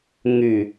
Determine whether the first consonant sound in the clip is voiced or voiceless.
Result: voiced